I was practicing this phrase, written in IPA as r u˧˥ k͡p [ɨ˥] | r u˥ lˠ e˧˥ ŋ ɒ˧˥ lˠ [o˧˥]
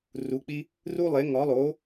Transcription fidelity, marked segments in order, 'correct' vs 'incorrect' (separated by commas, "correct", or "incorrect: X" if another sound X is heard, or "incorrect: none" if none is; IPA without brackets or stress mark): incorrect: i˥, correct